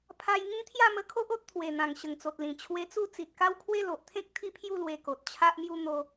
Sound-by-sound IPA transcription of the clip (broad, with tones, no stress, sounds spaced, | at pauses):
pʰ a˧ j ŋ ĩ˦ t̪ʰ j a˥˧ m ə˧ kʰ o˦ ʔ o˦ t̚ t̪ʰ w e˨˩ n̪ ã˨˩ ŋ ɕ ə˨˩ ŋ t͡s o˨ t̚ l ĩ˨˩ t͡ɕʰ w e˧ t͡s u˥˧ t͡s i˨ t̚ k a˦ w kʰ w e˦ l o˨ ʔ t̪ʰ ẽ˦ k̚ t̪ʰ i˥˧ pʰ j u˥˧ l w e˧ k o˨ t̚ t͡ɕʰ a˦ ʔ m j u˦ n̪ o˧